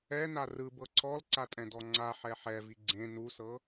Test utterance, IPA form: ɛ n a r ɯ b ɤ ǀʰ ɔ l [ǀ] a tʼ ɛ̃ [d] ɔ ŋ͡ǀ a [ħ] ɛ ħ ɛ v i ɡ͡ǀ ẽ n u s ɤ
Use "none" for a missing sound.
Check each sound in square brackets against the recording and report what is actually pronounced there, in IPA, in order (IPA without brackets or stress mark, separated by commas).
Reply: ǀ, d, ħ